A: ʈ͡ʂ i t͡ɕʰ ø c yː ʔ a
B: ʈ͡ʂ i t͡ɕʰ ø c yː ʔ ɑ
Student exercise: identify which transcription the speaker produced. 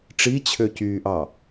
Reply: B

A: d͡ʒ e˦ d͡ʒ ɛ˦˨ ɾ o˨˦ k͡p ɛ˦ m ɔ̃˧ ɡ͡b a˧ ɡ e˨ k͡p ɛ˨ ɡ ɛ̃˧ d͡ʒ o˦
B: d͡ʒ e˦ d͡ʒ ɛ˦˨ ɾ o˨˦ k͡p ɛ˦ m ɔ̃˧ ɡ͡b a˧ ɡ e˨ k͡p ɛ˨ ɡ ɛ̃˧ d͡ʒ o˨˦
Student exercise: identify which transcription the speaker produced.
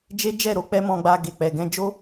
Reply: A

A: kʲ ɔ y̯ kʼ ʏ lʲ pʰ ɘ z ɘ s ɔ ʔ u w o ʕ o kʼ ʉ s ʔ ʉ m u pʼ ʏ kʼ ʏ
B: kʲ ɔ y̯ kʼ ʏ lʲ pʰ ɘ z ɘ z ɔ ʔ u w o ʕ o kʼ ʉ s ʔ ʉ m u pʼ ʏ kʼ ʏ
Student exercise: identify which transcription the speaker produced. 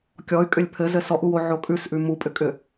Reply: A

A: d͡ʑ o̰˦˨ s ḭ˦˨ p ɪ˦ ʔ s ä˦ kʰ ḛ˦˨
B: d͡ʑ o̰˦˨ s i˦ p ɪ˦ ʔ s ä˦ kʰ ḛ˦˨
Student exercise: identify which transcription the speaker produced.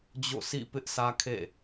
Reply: A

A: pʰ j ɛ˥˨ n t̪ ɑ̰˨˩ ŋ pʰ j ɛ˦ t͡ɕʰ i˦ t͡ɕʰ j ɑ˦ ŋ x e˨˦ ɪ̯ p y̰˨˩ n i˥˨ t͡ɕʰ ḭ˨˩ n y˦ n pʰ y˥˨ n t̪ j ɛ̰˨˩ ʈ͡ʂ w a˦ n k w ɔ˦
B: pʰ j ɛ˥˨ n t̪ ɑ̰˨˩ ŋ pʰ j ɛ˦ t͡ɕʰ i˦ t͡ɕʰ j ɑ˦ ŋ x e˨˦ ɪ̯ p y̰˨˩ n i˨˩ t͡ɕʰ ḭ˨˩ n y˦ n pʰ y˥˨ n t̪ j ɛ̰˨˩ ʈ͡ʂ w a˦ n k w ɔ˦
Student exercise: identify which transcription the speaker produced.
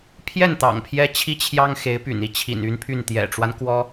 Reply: A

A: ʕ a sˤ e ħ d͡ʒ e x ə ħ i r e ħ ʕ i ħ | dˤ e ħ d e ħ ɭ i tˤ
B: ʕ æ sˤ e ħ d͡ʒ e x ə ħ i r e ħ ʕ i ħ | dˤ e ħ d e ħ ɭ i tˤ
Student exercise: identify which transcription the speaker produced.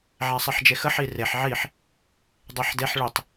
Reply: B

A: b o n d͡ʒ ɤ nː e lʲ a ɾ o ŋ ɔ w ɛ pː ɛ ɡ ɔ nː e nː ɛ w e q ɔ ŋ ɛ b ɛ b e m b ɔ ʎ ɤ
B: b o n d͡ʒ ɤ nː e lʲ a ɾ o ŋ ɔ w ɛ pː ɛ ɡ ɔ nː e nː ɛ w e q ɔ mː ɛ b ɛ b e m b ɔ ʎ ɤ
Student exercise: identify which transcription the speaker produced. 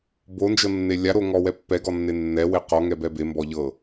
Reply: A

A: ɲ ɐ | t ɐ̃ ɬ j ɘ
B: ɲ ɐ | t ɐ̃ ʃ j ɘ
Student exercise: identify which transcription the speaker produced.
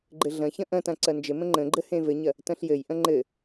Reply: A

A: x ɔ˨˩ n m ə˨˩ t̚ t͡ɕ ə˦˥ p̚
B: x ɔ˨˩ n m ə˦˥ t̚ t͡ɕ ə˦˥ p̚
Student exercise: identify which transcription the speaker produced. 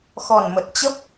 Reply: A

